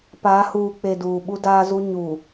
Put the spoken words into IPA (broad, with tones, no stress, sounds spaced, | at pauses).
p a˨˦ h uː˨ k͡p e˨ d uː˨ ɓ u˦ d aː˦ z u˦ ɲ uː˨